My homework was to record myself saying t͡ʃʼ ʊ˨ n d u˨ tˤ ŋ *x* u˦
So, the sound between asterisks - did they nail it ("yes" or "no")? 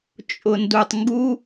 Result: no